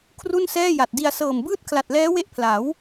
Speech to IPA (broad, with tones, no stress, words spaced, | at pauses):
kʰru˥˩nsɛː˥˩ja˨˩t̚di˧a̯ sɤː˨˩mbɯː˥˩t̚ kʰla˨˩t̚lɛː˦˥we˦˥ʔpʰla˩˦w